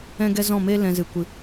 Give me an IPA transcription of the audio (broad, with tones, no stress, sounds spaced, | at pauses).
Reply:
ɛ̃˦ ɡ ɛ˦ z ɔ̃˦˨ m e˦ l ɛ̃˧ z ɨ˨ kʷ ɨ˨